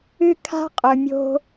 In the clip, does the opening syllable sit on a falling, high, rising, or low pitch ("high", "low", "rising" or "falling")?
high